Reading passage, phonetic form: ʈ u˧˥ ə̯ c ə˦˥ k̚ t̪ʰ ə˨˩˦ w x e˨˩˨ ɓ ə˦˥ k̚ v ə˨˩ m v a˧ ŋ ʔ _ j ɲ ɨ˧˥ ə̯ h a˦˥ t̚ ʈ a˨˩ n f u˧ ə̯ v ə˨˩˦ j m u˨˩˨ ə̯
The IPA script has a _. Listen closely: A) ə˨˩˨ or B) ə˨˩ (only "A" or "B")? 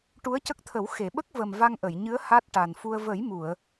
A